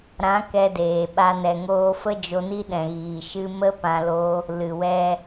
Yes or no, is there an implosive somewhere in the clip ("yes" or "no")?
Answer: yes